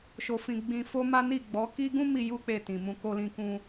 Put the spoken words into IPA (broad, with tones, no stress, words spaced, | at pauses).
ʃo˧fĩ˧ ɡ͡bĩ˧ fo˦ma˦ ni˦˨ɡ͡bɔ˨˦ ki˦ ɡũ˦mi˧ ju˦k͡pe˧tĩ˨mũ˧ ko˧lĩ˧kũ˧